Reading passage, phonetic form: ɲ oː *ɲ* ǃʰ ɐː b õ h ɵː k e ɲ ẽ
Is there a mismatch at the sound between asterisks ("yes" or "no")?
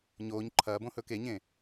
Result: no